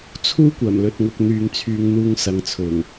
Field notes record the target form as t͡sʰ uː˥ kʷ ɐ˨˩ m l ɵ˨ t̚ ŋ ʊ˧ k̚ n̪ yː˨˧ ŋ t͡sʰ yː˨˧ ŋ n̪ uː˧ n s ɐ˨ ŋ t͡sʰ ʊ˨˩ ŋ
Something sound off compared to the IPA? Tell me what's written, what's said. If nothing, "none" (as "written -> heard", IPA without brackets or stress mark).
n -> ŋ